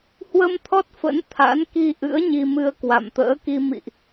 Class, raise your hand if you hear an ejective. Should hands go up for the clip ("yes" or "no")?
no